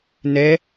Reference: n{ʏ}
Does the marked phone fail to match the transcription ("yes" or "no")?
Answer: yes